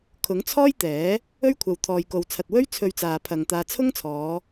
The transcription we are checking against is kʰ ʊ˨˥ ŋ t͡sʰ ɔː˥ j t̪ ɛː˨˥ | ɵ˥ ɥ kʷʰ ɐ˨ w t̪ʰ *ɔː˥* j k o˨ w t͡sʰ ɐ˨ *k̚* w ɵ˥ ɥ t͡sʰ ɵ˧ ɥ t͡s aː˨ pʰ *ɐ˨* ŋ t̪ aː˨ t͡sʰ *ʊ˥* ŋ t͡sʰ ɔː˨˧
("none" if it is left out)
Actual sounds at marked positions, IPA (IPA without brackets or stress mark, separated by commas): ɔː˨, t̚, ɐ˨, ʊ˥